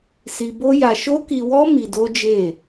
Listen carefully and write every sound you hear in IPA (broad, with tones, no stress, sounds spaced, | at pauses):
s i˧ b o˦ j a˧ ʃ o˦ k i˧ w ɔ˦ m i˧ d o˦ d͡ʒ e˦˨